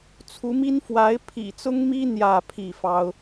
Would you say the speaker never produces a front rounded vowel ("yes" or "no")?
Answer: yes